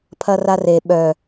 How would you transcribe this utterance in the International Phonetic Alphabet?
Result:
pʰ ɐ r a r e ɓ œ

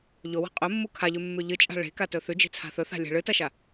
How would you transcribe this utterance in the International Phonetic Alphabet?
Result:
ʎ o w a̤ qʼ ɵ mː u kʰ a ʎ ʉ mː ʉ ʎ ɨ t͡ʃʼ a̤ ɭ e̤ k a t ɵ θ ʉ d͡ʒ e̤ t͡sʰ a̤ θ ɵ θ a̤ lʲ e̤ ɭ ɨ t ɐ ʃ a

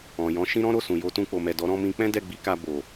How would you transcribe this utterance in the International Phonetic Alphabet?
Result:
ɔ̃˨ j ɔ̃˨˦ ʃ ĩ˦ ɾ ɔ̃˦ ɾ o˦˨ s ũ˨ j o˧ t ũ˧ k͡p o˨ m ɛ˨ d ɔ˨˦ ɾ ɔ̃˦ m ĩ˧ k͡p ɛ̃˦ d ɛ˦˨ ɡ͡b i˨˦ k a˧ b o˨

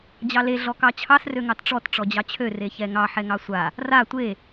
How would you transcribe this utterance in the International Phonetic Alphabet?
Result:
d͡ʑ ɑ l e ɮ ɔ k ɑ t͡ɕʰ ɑ s r ø ŋ ɑ t ʈ͡ʂ ɔ t ʈ͡ʂ ɔ d͡ʑ ɑ t͡ɕʰ ø r e ç ɛ ŋ ɑ ħ ɛ ŋ ɑ sʷ a | r a tʷ e

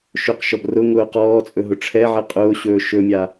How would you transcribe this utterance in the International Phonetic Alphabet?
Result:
ʃ ɵ q ʃ ɔ b r ʊ ŋ ʊː q ɔː t͡sʼ ɵ ɦ ʊ ʈ͡ʂʰ ɛ ʕ ɛ qʼ ʊː ɕ ɵː ʃ ɵ mʲ a

